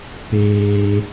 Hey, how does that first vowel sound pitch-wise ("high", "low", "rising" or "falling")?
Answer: high